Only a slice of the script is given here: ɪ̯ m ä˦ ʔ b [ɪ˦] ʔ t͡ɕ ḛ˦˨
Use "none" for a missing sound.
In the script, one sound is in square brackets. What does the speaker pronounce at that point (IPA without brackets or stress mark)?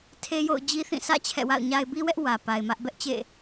ɛ˦